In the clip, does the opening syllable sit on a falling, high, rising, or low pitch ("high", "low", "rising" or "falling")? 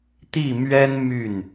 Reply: falling